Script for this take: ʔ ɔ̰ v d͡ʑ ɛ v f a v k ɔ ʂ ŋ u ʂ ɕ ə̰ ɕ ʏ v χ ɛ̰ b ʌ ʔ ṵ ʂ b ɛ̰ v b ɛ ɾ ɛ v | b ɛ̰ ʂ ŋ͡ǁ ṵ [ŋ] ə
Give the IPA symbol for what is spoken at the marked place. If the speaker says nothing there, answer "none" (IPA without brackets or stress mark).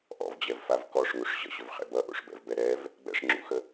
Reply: x